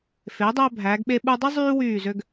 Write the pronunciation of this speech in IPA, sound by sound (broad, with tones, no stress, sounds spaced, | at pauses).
f e˩˧ dˤ æ˧ bʱ æ˩˧ ɡ ɓ e˧ ɓ u˧ dˤ i˥ zˤ yː˥ w yː˧˩ z ø˧ ɡ